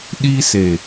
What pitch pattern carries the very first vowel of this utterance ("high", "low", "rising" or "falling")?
high